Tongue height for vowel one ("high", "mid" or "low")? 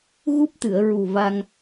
high